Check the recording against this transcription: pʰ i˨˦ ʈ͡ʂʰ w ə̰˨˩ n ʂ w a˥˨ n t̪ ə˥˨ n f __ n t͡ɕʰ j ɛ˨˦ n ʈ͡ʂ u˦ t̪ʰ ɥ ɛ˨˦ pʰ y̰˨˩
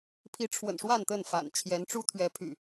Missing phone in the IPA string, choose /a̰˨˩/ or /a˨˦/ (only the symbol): a̰˨˩